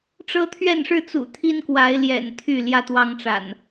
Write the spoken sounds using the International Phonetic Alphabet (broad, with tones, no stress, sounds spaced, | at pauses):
ʈ͡ʂ ɤ˦ t̪ʰ ɥ ɛ˥˨ n ʂ ɻ̩˥˨ t͡s ṵ˨˩ t̪ʰ i˦ n k w a˨˦ ɪ̯ l j ɛ̰˨˩ n t̪ʰ y˥˨ l j ä˦ t̪ w ɑ˦ ŋ ʈ͡ʂ a̰˨˩ n